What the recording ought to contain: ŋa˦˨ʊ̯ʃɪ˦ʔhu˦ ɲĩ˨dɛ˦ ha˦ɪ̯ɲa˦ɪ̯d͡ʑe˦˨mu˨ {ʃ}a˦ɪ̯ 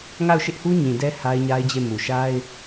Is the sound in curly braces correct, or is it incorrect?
correct